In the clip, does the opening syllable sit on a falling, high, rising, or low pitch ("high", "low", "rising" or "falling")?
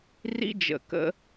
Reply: high